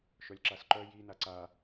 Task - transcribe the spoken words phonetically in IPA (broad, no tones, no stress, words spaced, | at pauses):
ʃœlʲǁasǃœ ji naǀa